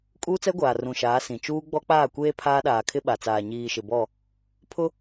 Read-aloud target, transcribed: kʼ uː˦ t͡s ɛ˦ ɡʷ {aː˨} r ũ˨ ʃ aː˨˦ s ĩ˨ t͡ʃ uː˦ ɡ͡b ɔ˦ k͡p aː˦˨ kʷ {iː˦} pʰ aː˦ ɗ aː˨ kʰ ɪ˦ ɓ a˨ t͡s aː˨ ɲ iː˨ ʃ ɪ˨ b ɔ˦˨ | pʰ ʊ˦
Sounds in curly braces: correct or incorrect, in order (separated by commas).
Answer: correct, incorrect